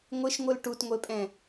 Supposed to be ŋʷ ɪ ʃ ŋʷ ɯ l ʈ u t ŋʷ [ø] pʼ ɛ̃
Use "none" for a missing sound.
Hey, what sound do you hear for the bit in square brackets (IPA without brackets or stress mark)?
e